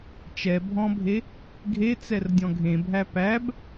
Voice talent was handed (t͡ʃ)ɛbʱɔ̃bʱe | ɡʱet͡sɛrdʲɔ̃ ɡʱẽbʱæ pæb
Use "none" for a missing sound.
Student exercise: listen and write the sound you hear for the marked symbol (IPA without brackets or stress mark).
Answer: t͡ʃ